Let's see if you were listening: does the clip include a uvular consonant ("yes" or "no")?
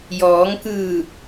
no